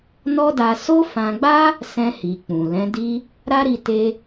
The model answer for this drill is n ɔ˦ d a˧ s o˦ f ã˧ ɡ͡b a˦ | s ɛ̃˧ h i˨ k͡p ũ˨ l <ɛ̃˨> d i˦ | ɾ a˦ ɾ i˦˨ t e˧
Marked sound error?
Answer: yes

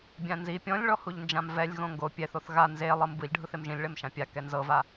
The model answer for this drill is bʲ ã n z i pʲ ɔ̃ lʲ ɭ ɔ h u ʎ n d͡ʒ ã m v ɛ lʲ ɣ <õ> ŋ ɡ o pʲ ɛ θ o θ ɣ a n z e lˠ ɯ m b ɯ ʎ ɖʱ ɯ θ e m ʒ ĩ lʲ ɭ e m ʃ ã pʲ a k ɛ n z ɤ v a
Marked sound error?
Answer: no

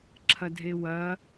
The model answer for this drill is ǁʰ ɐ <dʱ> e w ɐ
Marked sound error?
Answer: no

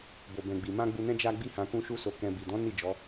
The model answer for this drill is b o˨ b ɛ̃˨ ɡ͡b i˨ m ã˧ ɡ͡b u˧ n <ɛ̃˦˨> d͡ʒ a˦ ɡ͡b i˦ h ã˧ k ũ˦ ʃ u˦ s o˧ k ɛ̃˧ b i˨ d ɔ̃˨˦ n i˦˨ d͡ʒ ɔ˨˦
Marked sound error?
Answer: yes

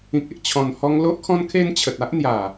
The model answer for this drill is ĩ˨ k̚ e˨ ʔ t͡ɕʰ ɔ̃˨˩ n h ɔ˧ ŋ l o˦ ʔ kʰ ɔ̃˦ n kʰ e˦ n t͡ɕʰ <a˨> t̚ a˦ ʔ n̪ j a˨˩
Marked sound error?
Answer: yes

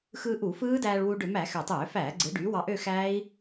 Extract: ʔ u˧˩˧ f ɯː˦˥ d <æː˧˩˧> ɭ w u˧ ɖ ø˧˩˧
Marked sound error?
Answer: yes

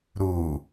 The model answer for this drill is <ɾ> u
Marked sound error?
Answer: no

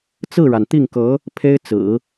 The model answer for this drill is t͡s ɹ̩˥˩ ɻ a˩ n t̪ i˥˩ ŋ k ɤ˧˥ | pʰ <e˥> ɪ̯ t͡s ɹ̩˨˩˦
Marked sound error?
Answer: no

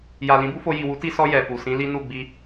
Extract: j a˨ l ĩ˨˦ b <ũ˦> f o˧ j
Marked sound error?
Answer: yes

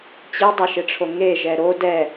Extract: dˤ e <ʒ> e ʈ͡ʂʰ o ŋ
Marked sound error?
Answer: yes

